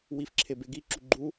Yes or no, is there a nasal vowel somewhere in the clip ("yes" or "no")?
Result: no